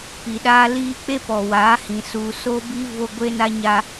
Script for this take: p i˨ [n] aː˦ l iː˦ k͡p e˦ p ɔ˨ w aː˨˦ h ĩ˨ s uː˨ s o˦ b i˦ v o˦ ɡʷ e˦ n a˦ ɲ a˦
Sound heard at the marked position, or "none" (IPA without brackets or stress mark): ɗ